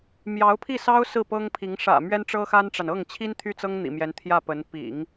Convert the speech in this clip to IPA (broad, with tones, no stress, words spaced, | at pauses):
mjɑ˧˥ʊ̯pʰi˥˩sɑ˥ʊ̯ sɹ̩˥˩pɤ˥ŋpʰi˧˥ŋ ʂä̰˨˩ mɥɛ˥nʈ͡ʂɤ˥xa˥nʈ͡ʂa˨n ɤ˥˩ŋt͡ɕʰi˥n t̪ʰy˥˩t͡sɤ˥ŋn̪ḭ˨˩mjɛ˧˥n t̪ʰjä˥˩pə˧˥n pḭ˨˩˦ŋ